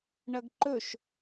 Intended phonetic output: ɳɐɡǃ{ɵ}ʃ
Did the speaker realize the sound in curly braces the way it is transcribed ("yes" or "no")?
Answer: yes